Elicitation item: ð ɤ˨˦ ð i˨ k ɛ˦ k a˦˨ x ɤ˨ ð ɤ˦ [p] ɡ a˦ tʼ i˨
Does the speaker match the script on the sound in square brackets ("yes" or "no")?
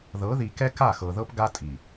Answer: yes